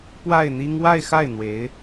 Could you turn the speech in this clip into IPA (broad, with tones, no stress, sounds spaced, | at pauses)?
p w a˥˩ ɪ̯ n̪ i˥ ŋ w a˥˧ ɪ̯ x a˥˩ ɪ̯ n̪ w e˧˥ ɪ̯